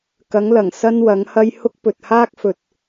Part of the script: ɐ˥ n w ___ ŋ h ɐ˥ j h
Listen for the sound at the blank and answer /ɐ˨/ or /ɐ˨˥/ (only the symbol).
ɐ˨˥